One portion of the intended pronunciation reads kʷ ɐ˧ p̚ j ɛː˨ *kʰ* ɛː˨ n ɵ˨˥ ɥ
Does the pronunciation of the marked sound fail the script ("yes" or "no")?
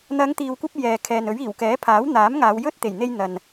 no